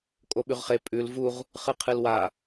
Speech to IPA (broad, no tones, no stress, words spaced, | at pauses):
kʼoɓʉʁχe pʼʉl vuʁ | χɨqʰɨlwa